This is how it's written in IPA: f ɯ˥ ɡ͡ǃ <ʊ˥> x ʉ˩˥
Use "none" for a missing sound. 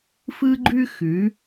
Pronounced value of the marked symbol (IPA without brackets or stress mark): ʉ˥